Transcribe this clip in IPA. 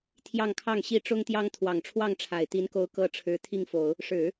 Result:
t̪ʰ j ɑ˥˧ ŋ kʰ ɑ˥˩ ŋ ɕ i˥ ʈ͡ʂ ʊ˥ ŋ t̪ j ɑ˥ ŋ t̪ʰ w ɑ˨˩ ŋ ʈ͡ʂʰ w ɑ˥˩ ŋ ʈ͡ʂʰ a˨˩ ɪ̯ t̪ i˧˥ n k o˧˥ ʊ̯ k ɤ˥ ʈ͡ʂʰ ɻ̩˧˥ t̪ʰ i˥˩ ŋ f o˨˩˦ ʊ̯ | ʂ ɻ̩˨˩˦

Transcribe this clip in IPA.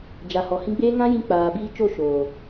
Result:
d͡ʒ a˨ h ɔ˨ h ĩ˧ ɡ͡b eː˦ ŋ ã˦ j ĩ˧ k͡p aː˨ b iː˧ t͡ʃ o˦˨ ʃ oː˨

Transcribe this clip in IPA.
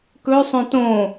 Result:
k ɵ sˤ õ t õ

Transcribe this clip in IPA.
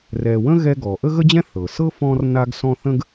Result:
r ɛ˨ w ə̃˥ ɣ ɛ˦ ɡ ɔ˩ ʔ ə˥ ɣ ə˥ d͡ʑ ɛ̃˥ θ ɤ˩ s ɤ˥ f ɔ̃˦ r n a˦ ɡ s ɔ̃˦ θ ə̃˥ ɡ

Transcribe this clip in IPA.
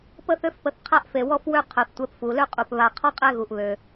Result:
p ə˦ θ ø˦ f p ə˨ θ qʰ a˥ ʔ f e˩ w ɔ˥ f w ø˦ qʰ œ˩ θ tʷ ɛ˨ p f u˩ l ø˥ qʼ u˩ p β a˨ qʰ ɔ˥ qʼ ɛ˦ ɣ u˩ ʔ β ø˩

